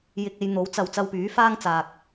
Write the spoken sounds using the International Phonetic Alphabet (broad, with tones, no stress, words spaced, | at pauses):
jɪ˧k̚e˨˧jn̪o˨˥w t͡sɐ˨w t͡sɐ˧wpyː˨˥faː˥ŋ t͡saː˧k̚